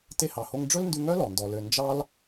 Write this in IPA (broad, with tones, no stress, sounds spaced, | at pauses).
t e˧ h ɑ˨ h o˧ ŋ ɖ͡ʐ ɵ˦ l n d ʉ˧ ŋ œ˦ l ɔ˨ n d ɔ˧ l ø˧ n d͡ʒ ɑ˦ l